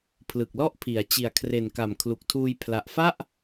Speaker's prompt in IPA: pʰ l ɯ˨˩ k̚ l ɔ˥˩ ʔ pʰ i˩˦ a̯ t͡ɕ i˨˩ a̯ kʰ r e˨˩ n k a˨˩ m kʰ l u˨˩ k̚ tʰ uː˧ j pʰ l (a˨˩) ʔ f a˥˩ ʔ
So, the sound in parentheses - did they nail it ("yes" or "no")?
yes